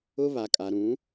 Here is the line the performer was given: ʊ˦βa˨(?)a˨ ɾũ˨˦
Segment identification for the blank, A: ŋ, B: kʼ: B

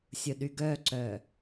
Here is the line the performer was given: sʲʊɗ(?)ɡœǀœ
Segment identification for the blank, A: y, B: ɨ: A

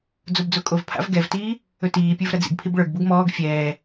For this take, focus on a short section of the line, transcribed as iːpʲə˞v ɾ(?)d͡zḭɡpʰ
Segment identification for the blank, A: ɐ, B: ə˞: A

